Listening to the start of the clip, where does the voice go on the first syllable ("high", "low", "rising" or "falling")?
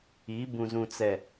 rising